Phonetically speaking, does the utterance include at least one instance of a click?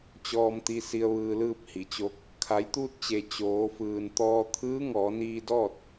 no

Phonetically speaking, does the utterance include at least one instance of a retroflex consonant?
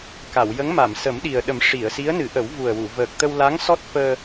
yes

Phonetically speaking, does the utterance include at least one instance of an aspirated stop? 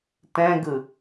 no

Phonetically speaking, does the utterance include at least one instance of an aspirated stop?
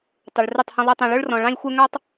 no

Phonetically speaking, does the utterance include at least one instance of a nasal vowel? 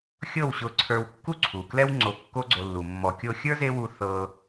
no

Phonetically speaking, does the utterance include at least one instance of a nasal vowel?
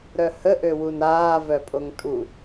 no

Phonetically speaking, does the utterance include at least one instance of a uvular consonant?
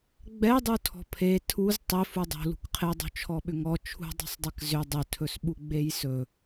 yes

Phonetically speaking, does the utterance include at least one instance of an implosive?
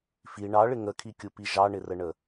no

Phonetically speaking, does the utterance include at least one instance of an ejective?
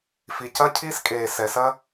yes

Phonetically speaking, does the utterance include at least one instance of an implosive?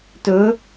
no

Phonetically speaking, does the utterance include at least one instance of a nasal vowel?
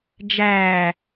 no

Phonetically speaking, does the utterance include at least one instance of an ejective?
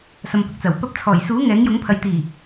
no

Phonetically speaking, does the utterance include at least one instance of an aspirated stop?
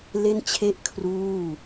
yes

